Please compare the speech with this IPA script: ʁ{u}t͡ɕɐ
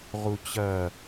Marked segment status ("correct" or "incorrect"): correct